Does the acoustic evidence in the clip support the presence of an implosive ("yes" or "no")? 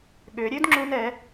yes